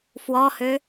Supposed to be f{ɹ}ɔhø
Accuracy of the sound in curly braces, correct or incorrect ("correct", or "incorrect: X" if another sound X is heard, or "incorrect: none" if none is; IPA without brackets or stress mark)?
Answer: incorrect: w